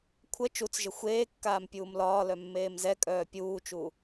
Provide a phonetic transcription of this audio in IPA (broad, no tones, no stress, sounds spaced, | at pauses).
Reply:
kʷʰ ə t͡ʃ u t͡s ʒ ə xʷ eː kː aː m pʲ uː m l ɒː l œ mː eː m z ɛ kʼ œː pʲ uː t͡ʃ u